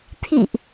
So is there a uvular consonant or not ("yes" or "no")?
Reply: no